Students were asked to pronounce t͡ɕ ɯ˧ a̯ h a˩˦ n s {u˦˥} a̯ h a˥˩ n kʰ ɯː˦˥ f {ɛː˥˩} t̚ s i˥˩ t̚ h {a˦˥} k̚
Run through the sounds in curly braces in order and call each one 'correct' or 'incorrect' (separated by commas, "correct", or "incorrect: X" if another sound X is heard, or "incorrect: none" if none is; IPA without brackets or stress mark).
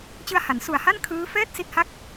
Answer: incorrect: u˨˩, correct, incorrect: a˥˩